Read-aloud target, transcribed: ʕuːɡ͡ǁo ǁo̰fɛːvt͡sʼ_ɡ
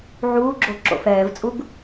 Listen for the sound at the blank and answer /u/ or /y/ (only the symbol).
u